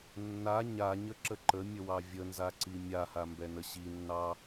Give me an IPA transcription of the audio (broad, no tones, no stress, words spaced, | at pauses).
nːa ɲaɲəǁə ǃəmʲəwɑ vʲənzaǀi mʲahambɛnə ɕinːɑ